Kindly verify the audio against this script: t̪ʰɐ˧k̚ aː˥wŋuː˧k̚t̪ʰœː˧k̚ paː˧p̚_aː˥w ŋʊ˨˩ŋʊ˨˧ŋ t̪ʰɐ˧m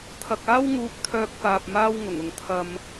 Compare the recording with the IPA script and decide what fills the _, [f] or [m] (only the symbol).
m